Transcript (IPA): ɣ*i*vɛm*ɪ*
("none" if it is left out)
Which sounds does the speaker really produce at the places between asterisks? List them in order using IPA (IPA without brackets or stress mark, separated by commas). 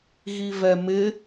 i, ɪ